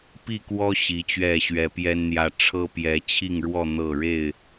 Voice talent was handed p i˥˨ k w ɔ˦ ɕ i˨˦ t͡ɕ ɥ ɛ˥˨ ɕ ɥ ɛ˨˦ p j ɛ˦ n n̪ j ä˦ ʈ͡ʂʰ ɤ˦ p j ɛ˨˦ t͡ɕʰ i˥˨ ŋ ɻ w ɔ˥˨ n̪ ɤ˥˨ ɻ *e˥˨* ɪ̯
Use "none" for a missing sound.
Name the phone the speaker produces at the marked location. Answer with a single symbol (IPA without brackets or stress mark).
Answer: e˥˨